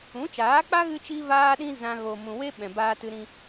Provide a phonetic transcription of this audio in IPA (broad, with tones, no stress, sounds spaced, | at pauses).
ũ˨˦ t͡ʃ aː˨˦ k͡p a˦ ɣ ɨ˦ t͡ʃ i˦ v aː˦ ɗ ĩ˦ z ã˧ ɣ o˨ m ũ˨ w e˧ ɓ ɛ̃˨ b aː˧ t ɨ˧ ɾ ĩ˧